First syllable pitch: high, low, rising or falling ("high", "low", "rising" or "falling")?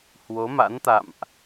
rising